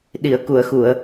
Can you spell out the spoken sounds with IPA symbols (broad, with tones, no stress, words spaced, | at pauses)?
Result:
ɗi˨˩˨ə̯ku˨˩˨ə̯xu˨˩˨ə̯